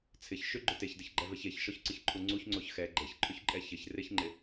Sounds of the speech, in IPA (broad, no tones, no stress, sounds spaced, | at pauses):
t͡sʰ ɪ ç ʃ ʏ ɡ͡ǃ ʏ t e ç d ɪ ç ɡ͡ǃ ɛ v ɛ ç e ç ʃ ɔ ç ǀ ɪ ç ǃʰ u ŋ͡ǀ u ç ŋ͡ǀ o ç x ɛ ɡ͡ǃ e ç ǃʰ ʏ ç ǃʼ ɛ ç ɪ ç r ɪ ç ŋ͡ǃ ɪ